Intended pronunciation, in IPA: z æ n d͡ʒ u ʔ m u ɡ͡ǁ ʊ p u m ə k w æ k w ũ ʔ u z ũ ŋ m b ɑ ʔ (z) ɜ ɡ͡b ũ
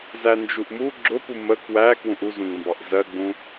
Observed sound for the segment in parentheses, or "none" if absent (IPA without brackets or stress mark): z